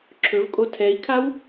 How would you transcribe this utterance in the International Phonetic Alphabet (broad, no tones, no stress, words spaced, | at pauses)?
ǁʰɵvkʼo tʰɛi̯kʰaw